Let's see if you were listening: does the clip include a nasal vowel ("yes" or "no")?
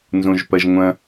yes